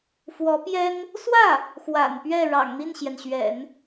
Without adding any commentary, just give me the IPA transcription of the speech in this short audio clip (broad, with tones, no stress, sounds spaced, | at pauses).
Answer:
f w ɔ˧˥ p j ɛ˥ n | s w ä˥˩ | x w a̰˨˩ n p ɥ ɛ˥˩ ɻ ɑ̰˨˩ ŋ n̪ i˥˩ n ɕ j ɛ˩ n ɕ ɥ ɛ̰˨˩˦ n